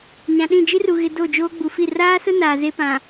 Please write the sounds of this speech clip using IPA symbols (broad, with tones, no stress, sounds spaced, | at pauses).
ɲ ã˨ ɗ ĩ˦˨ d͡ʒ i˦ r u˨ ɣ ɪ˨ d o˦˨ d͡ʒ oː˦ ɡ͡b u˨ f i˦˨ r aː˦ s ʊ˦ n aː˨ z e˦ p ã˨